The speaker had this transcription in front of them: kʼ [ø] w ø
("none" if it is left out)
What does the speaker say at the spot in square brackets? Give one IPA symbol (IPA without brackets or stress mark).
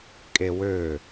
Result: e